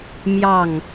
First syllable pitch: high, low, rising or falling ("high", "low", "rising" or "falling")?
falling